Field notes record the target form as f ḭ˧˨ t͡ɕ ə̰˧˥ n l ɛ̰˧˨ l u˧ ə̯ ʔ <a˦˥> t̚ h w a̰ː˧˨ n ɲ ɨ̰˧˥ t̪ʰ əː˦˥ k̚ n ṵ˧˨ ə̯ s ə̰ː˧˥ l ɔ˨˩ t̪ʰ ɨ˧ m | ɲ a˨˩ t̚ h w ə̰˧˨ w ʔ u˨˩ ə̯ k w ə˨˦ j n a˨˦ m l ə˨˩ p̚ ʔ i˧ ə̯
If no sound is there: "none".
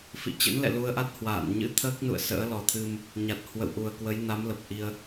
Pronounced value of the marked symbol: a˦˥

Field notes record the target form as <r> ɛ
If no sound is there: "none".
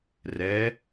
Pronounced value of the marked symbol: r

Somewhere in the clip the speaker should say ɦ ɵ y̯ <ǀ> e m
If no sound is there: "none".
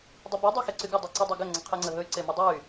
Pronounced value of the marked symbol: ǀ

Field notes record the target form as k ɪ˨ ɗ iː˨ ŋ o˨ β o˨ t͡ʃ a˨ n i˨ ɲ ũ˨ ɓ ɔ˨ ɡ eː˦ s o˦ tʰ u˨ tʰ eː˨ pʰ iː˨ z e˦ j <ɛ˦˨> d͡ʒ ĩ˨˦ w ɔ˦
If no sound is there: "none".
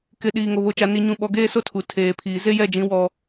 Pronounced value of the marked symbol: ɛ˦˨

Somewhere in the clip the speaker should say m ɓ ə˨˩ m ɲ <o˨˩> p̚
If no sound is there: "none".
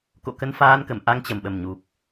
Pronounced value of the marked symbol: u˨˩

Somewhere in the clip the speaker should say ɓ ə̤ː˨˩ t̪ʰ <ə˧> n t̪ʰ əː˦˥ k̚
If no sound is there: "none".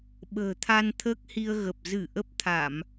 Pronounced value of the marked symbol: a˧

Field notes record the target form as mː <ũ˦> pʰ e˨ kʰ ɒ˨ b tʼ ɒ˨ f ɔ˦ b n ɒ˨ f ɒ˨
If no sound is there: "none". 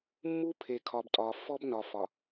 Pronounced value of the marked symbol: u˦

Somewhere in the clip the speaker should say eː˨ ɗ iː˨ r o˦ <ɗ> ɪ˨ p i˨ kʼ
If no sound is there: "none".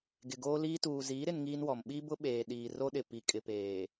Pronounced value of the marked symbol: ɗ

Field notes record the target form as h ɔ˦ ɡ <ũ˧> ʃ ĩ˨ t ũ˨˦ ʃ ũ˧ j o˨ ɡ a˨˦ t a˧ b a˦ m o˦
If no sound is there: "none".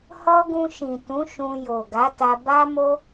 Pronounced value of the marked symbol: ũ˧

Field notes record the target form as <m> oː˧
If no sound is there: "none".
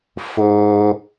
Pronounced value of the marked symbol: f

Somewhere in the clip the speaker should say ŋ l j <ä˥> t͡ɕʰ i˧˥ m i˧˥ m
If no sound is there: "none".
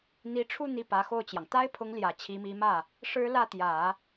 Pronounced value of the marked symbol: ä˨˩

